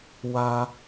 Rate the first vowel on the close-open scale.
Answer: open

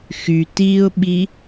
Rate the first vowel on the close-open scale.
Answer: close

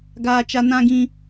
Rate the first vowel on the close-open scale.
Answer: open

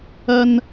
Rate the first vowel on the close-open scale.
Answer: open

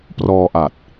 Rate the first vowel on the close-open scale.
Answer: mid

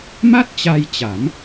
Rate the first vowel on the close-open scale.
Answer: open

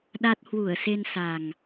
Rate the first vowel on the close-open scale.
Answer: open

